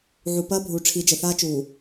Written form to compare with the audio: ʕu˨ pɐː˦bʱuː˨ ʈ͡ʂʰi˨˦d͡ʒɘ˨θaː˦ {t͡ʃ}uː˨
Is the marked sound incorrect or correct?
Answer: correct